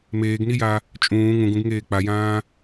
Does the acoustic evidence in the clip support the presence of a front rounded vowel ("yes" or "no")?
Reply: no